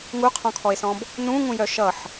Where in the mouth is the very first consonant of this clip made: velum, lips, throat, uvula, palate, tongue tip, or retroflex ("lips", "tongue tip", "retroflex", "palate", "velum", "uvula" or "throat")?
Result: velum